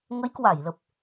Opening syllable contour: rising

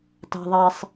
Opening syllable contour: low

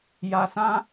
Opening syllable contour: low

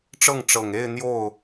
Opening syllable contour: falling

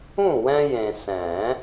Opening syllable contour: falling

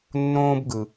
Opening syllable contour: high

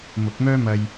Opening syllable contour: rising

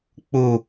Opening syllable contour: low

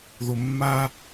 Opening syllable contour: low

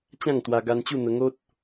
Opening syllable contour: falling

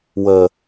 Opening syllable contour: low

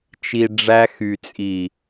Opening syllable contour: low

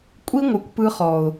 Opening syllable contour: high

